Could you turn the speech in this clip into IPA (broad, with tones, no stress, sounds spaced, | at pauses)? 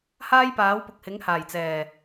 h aː˥ j p aː˨˥ w p ʊ˨ k̚ h ɪ˨˥ ŋ h aː˨˩ j t͡s ɛː˨˩